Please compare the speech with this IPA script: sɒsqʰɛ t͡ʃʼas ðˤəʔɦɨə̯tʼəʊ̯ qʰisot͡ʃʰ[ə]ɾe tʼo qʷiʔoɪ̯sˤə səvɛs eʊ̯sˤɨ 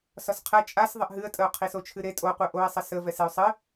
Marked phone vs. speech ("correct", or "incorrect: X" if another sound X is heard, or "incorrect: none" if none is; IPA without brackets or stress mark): incorrect: ɨ